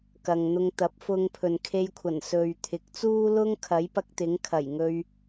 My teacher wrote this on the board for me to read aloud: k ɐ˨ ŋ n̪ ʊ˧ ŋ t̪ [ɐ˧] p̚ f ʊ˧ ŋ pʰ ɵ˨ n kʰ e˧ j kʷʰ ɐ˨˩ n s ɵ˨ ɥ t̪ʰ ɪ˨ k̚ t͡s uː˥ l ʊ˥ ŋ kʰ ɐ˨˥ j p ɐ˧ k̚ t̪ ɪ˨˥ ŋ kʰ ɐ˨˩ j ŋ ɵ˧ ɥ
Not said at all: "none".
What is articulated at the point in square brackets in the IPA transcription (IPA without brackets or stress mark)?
ɐ˨˥